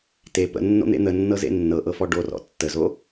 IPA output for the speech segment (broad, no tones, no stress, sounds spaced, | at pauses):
t e p ə̰ nː o̰ n̪ ḛ n̪ ə nː ɤ z ḛ nː ɤ ʔ ɤ f ɔ ɖ o r ɔ̰ tː ə z o